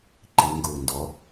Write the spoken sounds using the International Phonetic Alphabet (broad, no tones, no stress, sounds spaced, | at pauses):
ǃ i ŋ ɡ uː n d ɔ